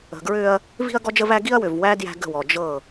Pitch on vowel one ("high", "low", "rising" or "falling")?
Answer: low